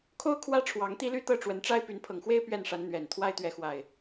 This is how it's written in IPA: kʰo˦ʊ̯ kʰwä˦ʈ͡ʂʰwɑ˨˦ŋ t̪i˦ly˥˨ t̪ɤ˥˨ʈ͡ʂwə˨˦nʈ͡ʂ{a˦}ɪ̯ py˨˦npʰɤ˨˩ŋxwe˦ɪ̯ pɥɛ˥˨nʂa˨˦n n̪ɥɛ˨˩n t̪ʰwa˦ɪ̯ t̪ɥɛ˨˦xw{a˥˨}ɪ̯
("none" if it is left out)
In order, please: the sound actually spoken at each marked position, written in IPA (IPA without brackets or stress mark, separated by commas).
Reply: a˦, a˨˩